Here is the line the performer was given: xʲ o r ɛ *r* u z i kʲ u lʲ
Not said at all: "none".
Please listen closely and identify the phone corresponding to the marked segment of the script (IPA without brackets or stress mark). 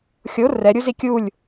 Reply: ɾʲ